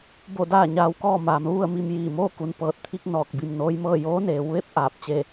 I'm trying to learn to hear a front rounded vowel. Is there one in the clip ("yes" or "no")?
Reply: no